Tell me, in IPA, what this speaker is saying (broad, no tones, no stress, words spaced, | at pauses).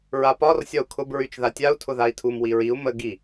ɹapɒr sʲɒu̯kʰʊb ɹyt͡ʃðatʲau̯ tʰʊðai̯tʰum wiɹiu̯ mə ɡi